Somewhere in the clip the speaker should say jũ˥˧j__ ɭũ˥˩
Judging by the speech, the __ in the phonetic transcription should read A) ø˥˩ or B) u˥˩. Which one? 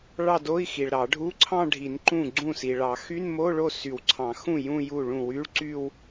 B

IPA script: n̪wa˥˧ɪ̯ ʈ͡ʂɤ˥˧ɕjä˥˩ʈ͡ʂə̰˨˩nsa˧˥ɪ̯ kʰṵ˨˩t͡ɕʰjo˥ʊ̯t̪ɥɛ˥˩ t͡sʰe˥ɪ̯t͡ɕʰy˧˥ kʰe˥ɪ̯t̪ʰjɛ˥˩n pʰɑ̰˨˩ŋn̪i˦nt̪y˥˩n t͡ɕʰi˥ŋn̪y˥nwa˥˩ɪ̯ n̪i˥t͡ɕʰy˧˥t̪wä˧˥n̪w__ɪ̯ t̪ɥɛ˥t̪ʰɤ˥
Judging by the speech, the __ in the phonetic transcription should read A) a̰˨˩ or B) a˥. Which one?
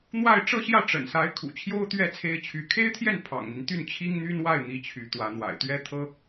A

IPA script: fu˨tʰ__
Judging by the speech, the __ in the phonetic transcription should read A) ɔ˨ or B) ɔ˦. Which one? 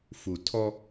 B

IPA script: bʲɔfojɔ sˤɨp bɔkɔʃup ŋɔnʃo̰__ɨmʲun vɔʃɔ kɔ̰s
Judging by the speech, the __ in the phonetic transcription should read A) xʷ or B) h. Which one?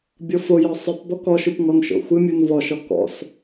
A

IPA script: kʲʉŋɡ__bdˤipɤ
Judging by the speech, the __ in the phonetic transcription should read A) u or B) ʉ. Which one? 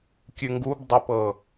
A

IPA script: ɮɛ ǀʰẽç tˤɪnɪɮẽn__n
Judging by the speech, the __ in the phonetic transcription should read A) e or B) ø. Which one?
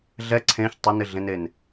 A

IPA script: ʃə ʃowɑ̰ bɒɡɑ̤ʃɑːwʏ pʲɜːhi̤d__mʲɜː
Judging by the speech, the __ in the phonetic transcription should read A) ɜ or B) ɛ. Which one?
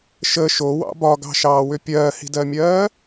A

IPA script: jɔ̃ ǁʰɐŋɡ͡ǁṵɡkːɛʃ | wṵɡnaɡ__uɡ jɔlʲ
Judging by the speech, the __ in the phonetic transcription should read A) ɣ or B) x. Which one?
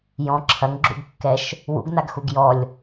B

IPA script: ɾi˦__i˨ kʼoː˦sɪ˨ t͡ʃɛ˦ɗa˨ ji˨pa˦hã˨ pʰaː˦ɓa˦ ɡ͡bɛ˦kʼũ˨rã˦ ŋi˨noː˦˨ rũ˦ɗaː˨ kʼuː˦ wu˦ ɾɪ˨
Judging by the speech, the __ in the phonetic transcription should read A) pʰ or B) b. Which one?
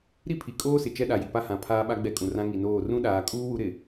A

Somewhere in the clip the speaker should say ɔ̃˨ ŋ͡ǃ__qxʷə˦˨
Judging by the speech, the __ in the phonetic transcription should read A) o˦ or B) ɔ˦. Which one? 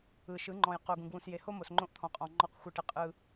B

